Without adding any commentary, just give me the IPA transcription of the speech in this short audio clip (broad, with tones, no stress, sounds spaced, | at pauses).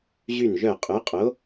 ʑ y˥˩ n ʒ œ˥˩ qʼ ø˨˥ qʼ o˨˥